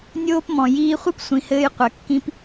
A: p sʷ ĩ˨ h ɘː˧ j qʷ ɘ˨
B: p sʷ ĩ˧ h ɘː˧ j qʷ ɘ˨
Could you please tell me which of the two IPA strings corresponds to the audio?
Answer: A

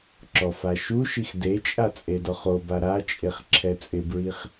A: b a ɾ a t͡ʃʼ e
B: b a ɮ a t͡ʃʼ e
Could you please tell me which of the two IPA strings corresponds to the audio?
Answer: A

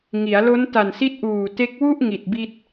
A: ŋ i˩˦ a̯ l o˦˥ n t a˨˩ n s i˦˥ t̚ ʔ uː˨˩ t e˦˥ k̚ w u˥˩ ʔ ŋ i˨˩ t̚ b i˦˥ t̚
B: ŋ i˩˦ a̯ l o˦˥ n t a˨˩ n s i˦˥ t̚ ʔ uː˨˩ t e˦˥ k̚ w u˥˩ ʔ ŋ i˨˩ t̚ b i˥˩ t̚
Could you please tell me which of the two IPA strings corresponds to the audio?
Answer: B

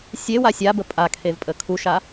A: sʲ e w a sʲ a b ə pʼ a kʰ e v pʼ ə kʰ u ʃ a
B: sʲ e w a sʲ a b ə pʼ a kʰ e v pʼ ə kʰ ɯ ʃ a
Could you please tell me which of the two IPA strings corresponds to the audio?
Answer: A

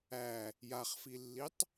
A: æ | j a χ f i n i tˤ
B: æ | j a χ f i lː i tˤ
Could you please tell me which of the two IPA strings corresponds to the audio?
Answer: B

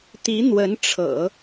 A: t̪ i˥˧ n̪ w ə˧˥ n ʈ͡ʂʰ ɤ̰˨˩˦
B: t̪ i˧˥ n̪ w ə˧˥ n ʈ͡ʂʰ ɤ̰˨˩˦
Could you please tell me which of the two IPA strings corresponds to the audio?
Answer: B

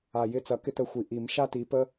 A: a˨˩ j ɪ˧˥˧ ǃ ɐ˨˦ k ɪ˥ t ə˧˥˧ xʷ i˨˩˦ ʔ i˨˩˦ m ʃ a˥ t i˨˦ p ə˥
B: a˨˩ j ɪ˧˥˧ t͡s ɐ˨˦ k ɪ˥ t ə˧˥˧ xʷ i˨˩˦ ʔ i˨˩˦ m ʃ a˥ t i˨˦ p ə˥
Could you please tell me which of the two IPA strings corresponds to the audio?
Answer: B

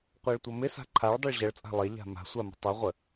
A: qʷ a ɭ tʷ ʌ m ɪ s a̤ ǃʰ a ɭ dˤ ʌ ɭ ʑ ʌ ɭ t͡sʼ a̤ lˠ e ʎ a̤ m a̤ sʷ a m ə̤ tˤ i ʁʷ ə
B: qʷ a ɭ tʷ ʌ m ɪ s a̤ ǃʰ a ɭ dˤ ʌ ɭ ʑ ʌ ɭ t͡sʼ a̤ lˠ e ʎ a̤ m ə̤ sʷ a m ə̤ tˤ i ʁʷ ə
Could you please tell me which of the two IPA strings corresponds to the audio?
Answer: A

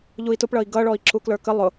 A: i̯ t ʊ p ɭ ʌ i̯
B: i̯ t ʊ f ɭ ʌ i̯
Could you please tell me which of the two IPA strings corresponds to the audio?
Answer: A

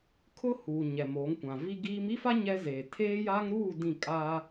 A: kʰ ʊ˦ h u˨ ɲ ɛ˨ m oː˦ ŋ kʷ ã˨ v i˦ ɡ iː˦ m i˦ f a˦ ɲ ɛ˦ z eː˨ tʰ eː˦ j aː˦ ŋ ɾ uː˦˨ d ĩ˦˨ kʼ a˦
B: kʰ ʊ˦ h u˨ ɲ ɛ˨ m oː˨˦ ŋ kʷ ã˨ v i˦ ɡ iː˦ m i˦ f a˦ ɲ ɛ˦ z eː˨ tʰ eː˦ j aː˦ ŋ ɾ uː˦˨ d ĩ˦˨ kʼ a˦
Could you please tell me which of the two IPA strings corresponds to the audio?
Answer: B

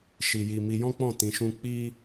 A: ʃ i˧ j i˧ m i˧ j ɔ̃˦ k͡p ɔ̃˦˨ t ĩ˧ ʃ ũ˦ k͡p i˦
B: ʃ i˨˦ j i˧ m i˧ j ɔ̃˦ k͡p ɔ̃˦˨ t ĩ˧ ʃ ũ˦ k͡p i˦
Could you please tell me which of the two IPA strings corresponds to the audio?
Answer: A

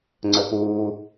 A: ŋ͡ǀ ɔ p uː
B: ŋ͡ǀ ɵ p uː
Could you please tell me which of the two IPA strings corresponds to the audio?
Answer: B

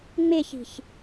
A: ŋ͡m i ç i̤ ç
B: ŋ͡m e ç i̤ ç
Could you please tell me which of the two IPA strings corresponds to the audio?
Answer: B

